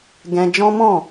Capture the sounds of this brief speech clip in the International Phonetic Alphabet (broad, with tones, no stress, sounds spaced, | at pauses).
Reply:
ɡ ɛ̃˧ d͡ʒ ɔ̃˦ m ɔ̃˦˨